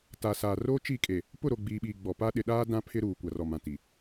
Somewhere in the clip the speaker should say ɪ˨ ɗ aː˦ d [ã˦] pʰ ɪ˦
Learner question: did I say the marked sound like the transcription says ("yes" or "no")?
yes